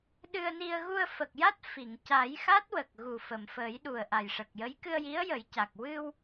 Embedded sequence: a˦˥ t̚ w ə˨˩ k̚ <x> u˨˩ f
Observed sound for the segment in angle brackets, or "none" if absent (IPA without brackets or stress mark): ɣ